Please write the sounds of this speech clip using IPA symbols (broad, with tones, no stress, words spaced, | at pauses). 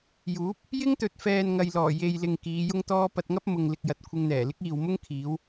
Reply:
juː˨˥p̚ | jɪ˥ŋt̪ɵ˨t̚fɛː˨n ŋɐ˨jlɔː˨˩ je˨jlɪ˨ŋ kiː˨˧jʊ˥ŋt̪ɔː˥ pɐ˧t̚ŋɐ˥p̚ mʊ˨ŋlɪ˨k̚jɐ˨t̚ kʷʰɪ˧ŋn̪ɛː˨˩lɪ˥k̚ iː˨wmʊ˥ŋkʰiː˨˧w